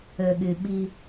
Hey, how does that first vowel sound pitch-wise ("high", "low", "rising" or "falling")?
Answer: low